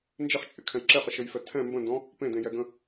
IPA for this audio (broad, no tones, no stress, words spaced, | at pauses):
nd͡ʒɪχt͡ʃʼɪkʰɛ̃j ǁeχəʃɘjfɛ tʰɛ̃ mbə̃ndɔ̃ | pẽdẽjɛɡə̃